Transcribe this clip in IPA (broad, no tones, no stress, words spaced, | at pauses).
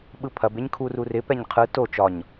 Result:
ɓɯpʰɐb eɲkʰururɪ pɛɲqʰɯ to t͡ʃɒɲ